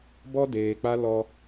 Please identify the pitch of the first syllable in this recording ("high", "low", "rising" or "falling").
high